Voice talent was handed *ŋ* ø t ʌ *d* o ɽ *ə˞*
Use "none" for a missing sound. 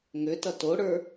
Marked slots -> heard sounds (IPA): ŋ, t, ə˞

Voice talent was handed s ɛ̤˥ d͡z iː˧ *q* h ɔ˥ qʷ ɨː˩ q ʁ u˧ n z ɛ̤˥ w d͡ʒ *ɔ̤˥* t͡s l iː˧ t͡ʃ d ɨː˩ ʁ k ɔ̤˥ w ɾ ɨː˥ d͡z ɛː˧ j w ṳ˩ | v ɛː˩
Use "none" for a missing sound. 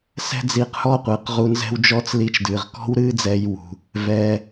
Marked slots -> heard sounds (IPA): q, ɔ˥

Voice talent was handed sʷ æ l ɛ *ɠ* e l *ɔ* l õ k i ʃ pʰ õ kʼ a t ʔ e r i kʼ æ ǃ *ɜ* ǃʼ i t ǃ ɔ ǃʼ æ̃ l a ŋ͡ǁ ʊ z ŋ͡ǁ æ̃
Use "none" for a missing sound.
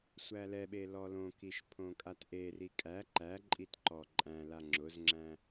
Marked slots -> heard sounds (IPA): ɓ, ɔ, æ

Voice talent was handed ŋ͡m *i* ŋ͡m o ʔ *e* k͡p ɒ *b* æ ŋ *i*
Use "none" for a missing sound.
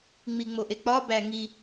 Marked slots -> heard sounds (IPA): i, e, b, i

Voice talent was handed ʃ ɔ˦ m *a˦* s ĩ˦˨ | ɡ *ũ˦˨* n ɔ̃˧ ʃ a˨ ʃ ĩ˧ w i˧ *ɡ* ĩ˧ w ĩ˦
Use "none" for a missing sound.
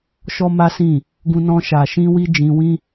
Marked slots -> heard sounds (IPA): a˦, ũ˧, d͡ʒ

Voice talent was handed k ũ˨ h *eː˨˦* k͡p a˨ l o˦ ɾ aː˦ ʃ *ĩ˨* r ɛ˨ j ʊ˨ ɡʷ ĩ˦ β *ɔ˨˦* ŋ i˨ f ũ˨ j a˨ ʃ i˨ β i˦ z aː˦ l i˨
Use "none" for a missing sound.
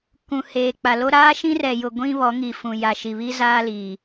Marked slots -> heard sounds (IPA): eː˨, ĩ˦, ɔ˨˦

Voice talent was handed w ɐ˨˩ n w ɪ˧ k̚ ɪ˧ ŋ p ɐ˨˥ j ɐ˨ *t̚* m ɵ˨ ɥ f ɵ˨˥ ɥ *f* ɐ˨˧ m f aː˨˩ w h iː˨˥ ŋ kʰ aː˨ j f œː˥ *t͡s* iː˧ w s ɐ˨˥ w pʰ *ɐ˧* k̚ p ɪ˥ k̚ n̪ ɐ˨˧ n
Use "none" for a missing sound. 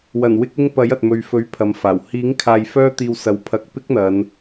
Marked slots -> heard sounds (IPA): t̚, pʰ, t̪, ɐ˧

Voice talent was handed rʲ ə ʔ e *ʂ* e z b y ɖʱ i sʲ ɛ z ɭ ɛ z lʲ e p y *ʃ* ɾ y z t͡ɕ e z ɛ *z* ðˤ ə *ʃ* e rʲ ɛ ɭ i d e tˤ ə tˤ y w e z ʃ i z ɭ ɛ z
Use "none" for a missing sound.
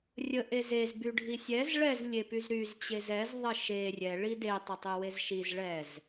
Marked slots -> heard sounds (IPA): z, z, z, ʃ

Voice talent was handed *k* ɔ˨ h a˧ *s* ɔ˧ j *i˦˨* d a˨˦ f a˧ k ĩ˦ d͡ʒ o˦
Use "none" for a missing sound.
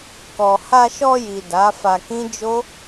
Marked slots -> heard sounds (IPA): k, ʃ, i˨

